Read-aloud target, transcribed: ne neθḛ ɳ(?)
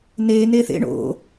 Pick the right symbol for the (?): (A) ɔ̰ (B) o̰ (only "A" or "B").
B